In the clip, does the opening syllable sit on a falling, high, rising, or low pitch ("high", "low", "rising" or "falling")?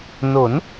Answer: rising